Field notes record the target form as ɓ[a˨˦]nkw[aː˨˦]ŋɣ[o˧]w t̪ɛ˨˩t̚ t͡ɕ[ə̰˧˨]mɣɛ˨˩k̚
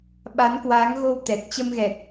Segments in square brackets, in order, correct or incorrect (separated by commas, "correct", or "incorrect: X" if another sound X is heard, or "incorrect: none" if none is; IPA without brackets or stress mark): correct, correct, correct, incorrect: ə˧